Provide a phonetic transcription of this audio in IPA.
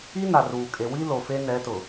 i˦ n a˨ r uː˨ kʼ e˨ w i˦ l o˨ f e˦ n ɛ˨˦ t ʊ˨

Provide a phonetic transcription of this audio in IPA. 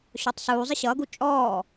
ɕ ɔ tˤ s uː zˤ ɪ ɕ ʌː ɡ u t͡ʃʼ ɔː

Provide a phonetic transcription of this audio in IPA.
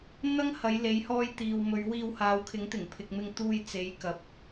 n̪ ɐ˥ ŋ h ɐ˨˧ j l e˨˧ j h ɔː˧ j t̪ iː˨ w m ɵ˨˧ ɥ w iː˧ w h aː˨˧ w kʰ ɪ˨˥ ŋ t̪ ɪ˨˩ ŋ pʰ ɪ˨ k̚ m ɪ˧ ŋ t̪ uː˧ j t͡s e˨˥ j k ɐ˨˥ p̚

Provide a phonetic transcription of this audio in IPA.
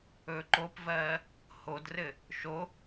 ɵː ǃ o p v ɜː | h o d r ɘ | ʃ o

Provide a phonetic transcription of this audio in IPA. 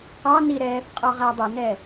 q ɑ n i ɾ ɛː f qʼ ɒ ʁ æ dˤ ə n ɛ

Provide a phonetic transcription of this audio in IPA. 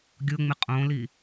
ɡʲ ʊ ŋ͡m ɪ qʼ õ l i

